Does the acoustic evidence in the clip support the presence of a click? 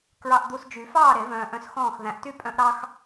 no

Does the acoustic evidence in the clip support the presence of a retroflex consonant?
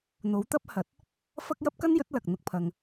no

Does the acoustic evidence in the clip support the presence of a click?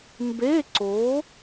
yes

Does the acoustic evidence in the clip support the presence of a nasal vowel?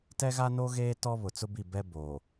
no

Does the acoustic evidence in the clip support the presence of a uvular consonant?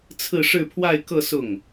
no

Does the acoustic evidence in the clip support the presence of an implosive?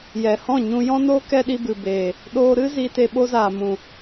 yes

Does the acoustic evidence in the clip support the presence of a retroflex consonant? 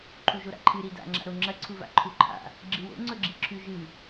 no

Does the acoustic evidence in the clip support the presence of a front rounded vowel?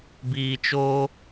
no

